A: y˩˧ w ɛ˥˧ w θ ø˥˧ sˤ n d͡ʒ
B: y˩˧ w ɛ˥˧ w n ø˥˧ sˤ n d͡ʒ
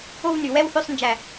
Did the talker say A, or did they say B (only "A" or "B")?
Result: A